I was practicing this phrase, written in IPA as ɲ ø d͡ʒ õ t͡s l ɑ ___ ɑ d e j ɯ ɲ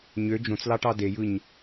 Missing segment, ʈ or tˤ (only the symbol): ʈ